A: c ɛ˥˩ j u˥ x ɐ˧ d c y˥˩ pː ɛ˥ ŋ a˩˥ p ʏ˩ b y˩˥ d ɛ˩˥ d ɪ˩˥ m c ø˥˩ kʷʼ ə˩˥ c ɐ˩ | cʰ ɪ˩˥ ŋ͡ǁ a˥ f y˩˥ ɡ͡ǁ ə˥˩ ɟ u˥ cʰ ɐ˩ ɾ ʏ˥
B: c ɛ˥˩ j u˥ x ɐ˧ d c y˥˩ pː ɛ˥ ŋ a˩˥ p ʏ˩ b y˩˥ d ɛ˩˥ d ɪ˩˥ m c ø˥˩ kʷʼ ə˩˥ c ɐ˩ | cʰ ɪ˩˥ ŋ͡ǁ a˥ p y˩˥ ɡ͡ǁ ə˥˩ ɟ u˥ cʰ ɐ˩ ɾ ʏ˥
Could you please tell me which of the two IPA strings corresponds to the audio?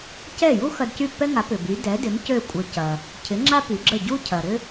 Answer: B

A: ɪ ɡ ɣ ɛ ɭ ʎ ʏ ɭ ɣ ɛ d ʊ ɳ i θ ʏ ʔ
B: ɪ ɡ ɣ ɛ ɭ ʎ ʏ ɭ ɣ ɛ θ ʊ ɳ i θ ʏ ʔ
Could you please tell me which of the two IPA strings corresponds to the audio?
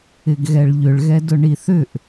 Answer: A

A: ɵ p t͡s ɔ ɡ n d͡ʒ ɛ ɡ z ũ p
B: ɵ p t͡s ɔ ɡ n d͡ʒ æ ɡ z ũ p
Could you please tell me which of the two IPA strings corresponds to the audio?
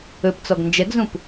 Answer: A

